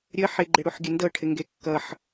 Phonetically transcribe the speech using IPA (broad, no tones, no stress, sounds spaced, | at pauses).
ɾʲ ə ħ ɪ ɡ͡ǃ ɪ ɽ u ħ ɡʲ ə n d ɤ ʈʰ ɪ ŋ ɡ e kː ʌ ħ